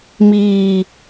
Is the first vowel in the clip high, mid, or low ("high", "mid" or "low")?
high